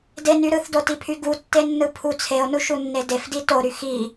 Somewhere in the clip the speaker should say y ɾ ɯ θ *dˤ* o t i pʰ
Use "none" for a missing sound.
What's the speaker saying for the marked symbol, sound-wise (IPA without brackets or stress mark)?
d